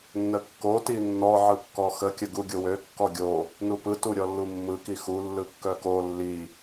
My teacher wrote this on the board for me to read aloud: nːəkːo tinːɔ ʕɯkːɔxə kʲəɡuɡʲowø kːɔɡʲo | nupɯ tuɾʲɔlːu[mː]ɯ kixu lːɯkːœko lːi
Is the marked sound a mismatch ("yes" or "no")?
no